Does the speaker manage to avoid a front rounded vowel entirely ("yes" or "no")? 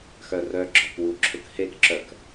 no